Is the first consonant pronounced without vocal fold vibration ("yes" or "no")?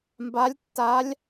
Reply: no